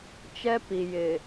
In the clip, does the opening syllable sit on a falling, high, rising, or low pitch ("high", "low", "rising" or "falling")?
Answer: high